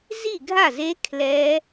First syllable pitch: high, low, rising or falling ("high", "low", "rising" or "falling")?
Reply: falling